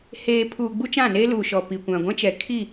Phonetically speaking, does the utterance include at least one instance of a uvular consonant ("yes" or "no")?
no